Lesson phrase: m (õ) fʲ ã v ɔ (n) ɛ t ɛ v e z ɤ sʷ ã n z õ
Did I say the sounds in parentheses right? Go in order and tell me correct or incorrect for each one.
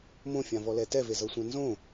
correct, incorrect

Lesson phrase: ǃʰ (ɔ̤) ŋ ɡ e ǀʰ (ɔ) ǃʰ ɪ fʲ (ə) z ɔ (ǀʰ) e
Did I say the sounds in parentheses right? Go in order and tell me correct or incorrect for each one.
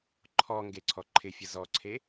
incorrect, correct, correct, correct

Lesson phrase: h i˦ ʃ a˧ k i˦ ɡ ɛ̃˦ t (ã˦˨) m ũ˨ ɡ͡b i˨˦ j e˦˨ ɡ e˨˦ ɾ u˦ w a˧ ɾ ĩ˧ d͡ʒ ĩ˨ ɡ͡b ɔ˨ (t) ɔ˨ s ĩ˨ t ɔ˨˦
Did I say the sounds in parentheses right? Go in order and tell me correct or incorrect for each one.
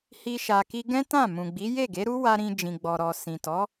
correct, incorrect

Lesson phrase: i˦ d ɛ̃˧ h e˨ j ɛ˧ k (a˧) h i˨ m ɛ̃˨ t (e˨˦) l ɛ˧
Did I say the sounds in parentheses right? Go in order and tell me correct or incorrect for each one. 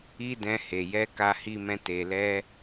incorrect, incorrect

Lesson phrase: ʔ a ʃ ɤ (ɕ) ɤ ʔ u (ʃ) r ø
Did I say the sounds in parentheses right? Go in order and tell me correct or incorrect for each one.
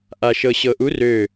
correct, incorrect

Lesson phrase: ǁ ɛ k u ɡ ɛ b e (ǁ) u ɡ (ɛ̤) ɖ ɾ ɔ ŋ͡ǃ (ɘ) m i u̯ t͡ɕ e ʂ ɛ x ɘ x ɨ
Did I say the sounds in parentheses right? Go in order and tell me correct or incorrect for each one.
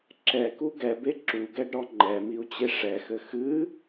correct, incorrect, incorrect

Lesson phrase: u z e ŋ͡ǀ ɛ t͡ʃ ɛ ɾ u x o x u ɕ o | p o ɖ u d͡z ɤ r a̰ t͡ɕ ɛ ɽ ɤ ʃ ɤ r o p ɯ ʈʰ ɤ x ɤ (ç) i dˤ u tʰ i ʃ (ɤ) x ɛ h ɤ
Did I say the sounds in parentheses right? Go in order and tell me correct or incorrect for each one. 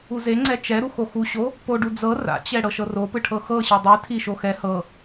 incorrect, incorrect

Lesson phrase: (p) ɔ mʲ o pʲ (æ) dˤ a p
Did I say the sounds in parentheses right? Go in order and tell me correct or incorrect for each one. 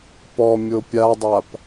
correct, incorrect

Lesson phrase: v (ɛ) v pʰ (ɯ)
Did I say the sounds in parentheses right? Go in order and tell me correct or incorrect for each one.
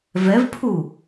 correct, incorrect

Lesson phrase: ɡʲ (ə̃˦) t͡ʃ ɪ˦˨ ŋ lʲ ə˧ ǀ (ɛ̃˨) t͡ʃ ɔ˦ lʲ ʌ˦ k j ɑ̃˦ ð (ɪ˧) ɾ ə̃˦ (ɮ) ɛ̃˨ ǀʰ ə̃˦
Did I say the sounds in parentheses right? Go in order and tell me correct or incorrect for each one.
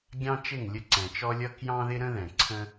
incorrect, correct, incorrect, incorrect

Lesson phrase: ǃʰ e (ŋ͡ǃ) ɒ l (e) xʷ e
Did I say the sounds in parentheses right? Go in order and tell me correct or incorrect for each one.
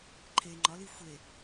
correct, incorrect

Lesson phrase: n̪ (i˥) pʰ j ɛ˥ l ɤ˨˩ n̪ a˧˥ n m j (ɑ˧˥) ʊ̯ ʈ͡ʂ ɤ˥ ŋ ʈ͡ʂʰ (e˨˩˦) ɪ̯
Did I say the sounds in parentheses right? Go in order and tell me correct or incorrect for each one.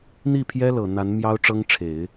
incorrect, incorrect, correct

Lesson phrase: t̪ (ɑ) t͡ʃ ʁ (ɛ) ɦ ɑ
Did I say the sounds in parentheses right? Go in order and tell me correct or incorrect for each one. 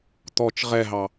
incorrect, correct

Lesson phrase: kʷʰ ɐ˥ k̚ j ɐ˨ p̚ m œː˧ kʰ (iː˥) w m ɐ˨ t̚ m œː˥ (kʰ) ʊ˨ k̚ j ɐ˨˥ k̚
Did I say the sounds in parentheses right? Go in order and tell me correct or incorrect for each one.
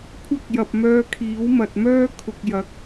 incorrect, correct

